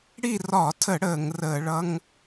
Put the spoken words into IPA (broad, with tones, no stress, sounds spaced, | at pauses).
ɽ i˦˨ r ɒ˧˩˧ tʰ ə˧˩˧ ɽ əː˧˩˧ ŋ r əː˧˩˧ ɭ ʌ˧˥˧ ŋ